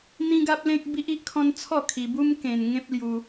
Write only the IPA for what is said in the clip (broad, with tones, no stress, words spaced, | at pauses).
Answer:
n̪ĩ˦ɡa˦p̚lẽ˦k̚ bi˦ʔi˦ʔkʰɔ̃˦n t͡sʰɔ˥˧kʰi˧bu˦m kẽ˧nŋẽ˦p̚ lju˧